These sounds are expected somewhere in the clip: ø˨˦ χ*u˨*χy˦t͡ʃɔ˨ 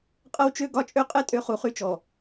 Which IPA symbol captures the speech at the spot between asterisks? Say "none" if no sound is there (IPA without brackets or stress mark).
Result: u˨